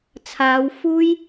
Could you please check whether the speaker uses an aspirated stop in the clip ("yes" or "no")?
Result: yes